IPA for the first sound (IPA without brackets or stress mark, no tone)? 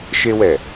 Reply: ʃ